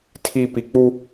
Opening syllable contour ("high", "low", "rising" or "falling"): high